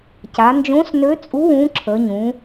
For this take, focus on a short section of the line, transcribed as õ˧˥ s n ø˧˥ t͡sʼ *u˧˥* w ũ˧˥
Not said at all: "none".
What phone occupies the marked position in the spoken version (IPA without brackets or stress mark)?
u˧˥